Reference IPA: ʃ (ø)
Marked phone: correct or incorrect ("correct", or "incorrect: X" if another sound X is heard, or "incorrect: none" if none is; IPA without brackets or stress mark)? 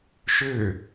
correct